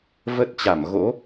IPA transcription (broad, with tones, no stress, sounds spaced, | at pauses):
v ə˦˥ t̚ t͡ɕ a˧˩ m ɣ o̰˧˥